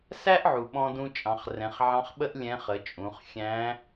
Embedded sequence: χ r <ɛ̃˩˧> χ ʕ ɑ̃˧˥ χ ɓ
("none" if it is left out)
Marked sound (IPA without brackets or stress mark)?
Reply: ɛ̃˩˧